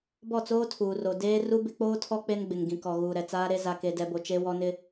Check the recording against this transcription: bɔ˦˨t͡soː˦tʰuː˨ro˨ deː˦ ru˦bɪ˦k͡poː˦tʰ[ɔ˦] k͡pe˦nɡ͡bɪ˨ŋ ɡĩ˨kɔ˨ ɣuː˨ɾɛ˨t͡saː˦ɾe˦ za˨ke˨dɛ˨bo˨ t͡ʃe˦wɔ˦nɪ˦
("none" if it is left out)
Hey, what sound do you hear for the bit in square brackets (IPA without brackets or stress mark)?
ɔ˦